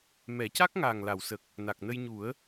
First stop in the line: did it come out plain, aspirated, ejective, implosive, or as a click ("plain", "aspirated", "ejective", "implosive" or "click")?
plain